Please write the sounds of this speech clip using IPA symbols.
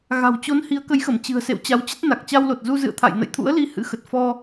ɣ a̤˨˩ w t͡ɕ o˨˦ n h i˨˦ ə̯ k ə˨˦ j x ə˧˩ m t͡ɕ ɨ̤˨˩ ə̯ s ḛ˧˨ w t͡ɕ a˨˦ w t͡ɕ ə˦˥ t̚ n a˨˩ k̚ t͡ɕ a˧ w l o˨˩ t̚ z u˧ z ɨ̰˧˨ ə̯ t̪ʰ a̰˧˨ j n ə̰˧˨ j t̪ʰ ṵ˧˥ ə̯ l i˨˦ h ɨ̰˧˥ x ə˨˩ t̚ f ɔ˧

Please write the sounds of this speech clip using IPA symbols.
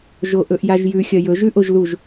ʒ o ʔ ɵ ʔ j a ʒ j ʉ xʲ ɐ j ɵ ʒ ʉ ʔ o ʒ l u ʒ

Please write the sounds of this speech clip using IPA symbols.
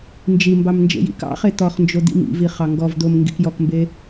n d͡ʒ i m b ɑ m n d͡ʒ ḛ j ḭ k ɑ̰ χ e t̪ ɔ χ n d͡ʒ o d̪ ḭ m ḭ v i χ ɑ ŋ ɡ ɔ v d̪ o m ŋ ɡ ḭ k j ɔ k m b e

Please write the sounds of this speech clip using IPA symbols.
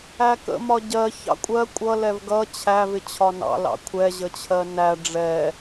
æ k ə̰ m ɒ ɟ ɜ ç ɑ̰ kʷʼ ɜ kʷʼ ʌ l ɛ v ɡ ʌ t͡ɕʰ æ v ɪ t͡ɕʰ ɒ n ɑ̰ l ɑ̰ kʷʰ ɛ ʑ ə t͡ɕʰ ɜ n æ ɖ͡ʐ ɛ

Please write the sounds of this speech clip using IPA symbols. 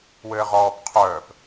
w ɘː ʁ ɔː p qʰ œː p

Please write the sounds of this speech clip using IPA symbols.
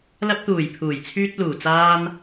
l ɐ˧ p̚ t̪ uː˨˩ j pʰ uː˨˩ j t͡sʰ yː˧ t̚ l uː˨˩ t͡s aː˧ n

